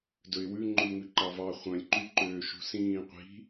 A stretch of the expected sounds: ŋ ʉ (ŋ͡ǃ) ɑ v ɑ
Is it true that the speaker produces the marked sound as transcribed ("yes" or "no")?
no